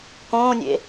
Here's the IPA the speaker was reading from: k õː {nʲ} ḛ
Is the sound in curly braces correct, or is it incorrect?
correct